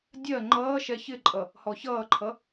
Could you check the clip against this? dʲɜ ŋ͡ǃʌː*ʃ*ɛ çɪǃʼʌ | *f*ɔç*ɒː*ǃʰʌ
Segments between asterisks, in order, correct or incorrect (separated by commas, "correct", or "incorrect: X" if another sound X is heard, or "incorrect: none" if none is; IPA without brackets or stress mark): correct, incorrect: h, incorrect: ʌː